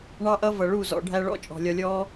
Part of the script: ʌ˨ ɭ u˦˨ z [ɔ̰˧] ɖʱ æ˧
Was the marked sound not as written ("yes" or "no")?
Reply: yes